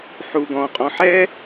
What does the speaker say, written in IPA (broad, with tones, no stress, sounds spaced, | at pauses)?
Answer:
ħ u˨ ɡ ɔ̃˨ qʼ ɔ̃˨ ħ ɛ˥